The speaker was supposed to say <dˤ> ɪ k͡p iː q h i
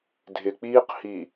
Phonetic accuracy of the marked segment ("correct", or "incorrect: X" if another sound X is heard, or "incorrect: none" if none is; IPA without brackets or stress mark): incorrect: dʱ